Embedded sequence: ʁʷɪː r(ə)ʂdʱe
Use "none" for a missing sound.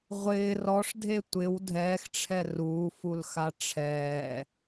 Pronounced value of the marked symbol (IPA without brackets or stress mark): ɔ